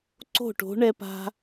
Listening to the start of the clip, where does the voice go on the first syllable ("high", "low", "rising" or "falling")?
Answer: falling